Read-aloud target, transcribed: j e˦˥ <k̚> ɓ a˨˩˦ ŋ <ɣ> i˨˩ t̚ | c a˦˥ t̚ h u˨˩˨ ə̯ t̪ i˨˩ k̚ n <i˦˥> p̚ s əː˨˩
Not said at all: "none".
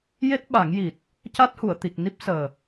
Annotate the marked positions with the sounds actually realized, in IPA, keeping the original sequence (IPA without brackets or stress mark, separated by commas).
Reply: t̚, j, i˦˥